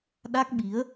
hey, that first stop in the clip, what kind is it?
implosive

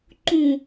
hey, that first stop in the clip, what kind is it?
click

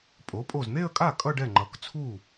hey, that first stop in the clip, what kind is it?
ejective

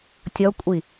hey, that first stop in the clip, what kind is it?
plain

